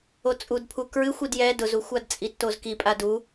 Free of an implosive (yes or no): yes